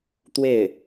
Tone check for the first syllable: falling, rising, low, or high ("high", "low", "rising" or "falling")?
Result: falling